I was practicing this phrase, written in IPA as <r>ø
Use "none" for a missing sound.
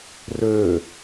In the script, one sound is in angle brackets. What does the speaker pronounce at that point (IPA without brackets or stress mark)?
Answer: r